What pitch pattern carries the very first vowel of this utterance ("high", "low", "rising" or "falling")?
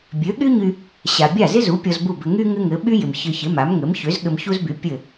rising